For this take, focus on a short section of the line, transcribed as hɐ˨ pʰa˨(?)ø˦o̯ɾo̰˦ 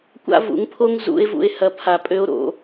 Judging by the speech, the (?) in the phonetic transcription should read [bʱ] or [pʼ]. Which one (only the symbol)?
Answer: pʼ